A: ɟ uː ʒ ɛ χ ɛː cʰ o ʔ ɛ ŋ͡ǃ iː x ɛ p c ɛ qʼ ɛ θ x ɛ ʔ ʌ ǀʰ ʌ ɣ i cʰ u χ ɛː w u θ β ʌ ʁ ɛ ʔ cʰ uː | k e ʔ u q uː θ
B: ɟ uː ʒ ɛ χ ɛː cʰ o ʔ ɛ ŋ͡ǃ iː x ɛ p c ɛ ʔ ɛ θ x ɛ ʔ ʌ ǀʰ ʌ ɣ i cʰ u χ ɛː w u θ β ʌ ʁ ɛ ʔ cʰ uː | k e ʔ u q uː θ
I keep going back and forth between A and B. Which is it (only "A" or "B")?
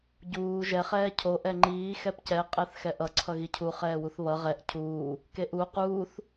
A